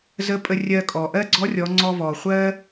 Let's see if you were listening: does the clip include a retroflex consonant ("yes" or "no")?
no